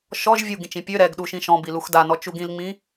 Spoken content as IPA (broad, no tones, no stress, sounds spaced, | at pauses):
ʃ ɔ ʒ vʲ u ɡ ĩ t͡ʃ ĩ pʲ ø ɾ ɛ ɡ ɗ u ʃ ĩ ʃ ɔ̃ b i l u x d a n ɔ t͡ʃ u ɡ ĩ l ŋ͡m ĩ